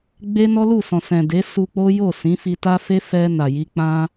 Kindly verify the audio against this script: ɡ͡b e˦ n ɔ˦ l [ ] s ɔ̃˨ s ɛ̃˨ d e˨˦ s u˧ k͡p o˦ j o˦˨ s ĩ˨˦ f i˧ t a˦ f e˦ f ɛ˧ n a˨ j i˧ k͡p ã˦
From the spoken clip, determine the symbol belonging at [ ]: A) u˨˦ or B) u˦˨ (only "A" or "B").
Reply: B